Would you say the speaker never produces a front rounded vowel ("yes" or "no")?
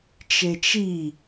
yes